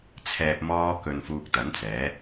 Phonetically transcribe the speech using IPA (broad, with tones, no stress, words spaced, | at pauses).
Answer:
t͡sʰɛː˨p̚mɔː˧kɵ˨n fuː˧k̚t̪ɐ˨˥nt͡sɛː˨˥